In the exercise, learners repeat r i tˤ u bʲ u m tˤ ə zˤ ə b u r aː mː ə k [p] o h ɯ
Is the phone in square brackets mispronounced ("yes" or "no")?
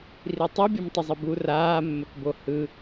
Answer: yes